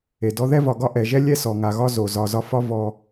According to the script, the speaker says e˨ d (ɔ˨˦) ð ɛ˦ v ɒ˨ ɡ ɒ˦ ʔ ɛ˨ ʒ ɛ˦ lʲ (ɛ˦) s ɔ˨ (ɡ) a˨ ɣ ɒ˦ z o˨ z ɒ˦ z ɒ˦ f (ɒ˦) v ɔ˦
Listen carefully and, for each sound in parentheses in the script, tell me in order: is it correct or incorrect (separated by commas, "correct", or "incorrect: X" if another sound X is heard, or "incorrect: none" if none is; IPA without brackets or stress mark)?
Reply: incorrect: ɔ˦, correct, incorrect: ŋ, correct